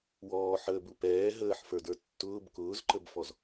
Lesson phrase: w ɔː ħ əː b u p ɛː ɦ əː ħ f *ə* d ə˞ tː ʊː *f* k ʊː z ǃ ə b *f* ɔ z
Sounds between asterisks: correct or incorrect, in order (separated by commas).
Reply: incorrect, incorrect, correct